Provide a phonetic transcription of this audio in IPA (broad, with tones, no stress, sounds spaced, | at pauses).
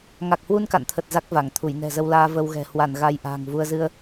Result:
ŋ a˨˩ k̚ h w u˧ n k a̰˧˨ n t̪ʰ ə˨˩ t̚ z a˦˥ k̚ v a˧˩ ŋ t̪ʰ u˧˩ j n ɛ̤˨˩ z ə˧ w l aː˧ v ə˧ w ɣ ɛ̤˨˩ h w a˧˩ n ɣ a˧ j ʔ a̤ː˨˩ ŋ v u˧ ə̯ z ɨ˧ ə̯